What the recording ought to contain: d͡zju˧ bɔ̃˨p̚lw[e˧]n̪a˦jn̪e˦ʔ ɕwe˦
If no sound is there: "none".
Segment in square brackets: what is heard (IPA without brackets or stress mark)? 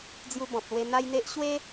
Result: e˧